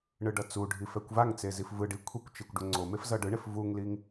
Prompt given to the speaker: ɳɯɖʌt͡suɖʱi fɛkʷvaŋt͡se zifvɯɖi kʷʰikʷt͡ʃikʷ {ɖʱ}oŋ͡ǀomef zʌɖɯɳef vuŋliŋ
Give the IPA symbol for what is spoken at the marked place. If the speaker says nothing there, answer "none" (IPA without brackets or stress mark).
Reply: ɖ